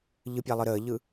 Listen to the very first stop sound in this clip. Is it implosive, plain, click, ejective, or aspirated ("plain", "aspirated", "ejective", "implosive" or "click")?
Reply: plain